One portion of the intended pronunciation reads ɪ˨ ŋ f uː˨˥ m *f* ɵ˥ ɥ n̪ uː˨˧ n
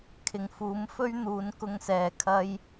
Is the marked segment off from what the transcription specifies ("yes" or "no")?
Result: no